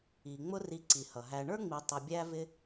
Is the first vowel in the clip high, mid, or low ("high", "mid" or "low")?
high